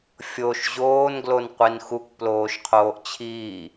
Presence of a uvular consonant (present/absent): present